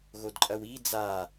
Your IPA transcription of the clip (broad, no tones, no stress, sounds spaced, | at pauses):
ɣ o d ǃʼ ɐ w i d͡z a